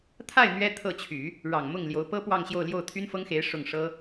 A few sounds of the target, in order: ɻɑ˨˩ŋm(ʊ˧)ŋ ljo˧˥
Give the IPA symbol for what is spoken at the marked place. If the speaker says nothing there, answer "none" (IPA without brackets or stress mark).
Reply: ʊ˥˩